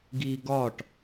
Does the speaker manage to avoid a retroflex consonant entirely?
no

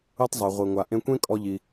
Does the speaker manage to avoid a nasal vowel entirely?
no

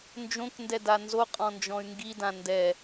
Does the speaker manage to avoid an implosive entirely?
yes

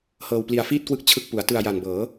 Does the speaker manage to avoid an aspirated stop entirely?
no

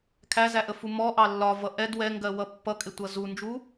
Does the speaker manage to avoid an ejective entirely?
no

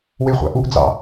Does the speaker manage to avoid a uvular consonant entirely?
no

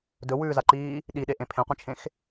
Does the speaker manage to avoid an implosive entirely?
no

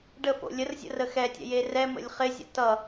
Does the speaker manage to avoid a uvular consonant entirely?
no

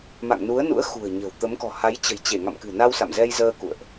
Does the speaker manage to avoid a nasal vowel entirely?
yes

